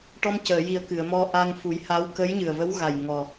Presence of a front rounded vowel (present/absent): absent